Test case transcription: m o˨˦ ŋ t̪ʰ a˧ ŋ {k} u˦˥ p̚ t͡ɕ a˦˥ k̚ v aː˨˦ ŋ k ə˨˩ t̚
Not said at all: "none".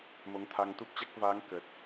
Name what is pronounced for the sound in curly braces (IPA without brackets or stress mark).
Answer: t̪